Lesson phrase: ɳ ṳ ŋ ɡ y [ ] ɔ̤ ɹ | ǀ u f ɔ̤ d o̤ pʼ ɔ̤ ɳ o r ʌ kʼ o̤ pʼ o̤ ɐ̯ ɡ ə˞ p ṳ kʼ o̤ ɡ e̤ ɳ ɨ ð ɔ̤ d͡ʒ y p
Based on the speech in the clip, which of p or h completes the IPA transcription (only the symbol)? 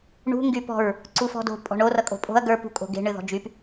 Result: p